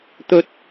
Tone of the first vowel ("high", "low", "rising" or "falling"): high